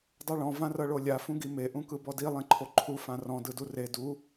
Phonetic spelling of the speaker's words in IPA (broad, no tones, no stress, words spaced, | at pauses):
dˤɯɭɔ̃ vãrɤɭolʲa fũɡime ʔũkɯbɔdi lˠẽǃʰoǃʰu fãrɔ̃ dɯdure du